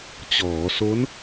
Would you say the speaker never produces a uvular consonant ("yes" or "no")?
yes